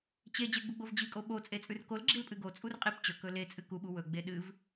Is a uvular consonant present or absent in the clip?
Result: present